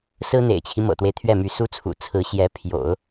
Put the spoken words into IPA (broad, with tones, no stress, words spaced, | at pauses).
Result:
sɹ̩˥n̪ḛ˨˩ɪ̯t͡ɕʰi˦ mɤ̰˨˩t̪we˦ɪ̯t̪ʰɥɛ˥˩my˧˥ su˥t͡sʰṵ˨˩ t͡sʰɹ̩˧˥ɕjɛ˧˥ pʰjo̰˨˩˦ʊ̯